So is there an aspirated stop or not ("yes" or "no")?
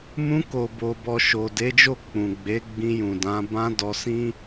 no